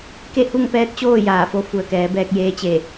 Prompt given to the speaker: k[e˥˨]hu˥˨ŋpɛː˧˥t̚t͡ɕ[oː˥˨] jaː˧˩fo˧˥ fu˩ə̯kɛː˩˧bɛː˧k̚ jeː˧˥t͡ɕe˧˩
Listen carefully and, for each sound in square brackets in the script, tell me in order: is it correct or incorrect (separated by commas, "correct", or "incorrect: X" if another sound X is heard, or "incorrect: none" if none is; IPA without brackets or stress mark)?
correct, correct